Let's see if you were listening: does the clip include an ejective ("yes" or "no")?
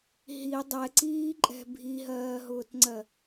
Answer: yes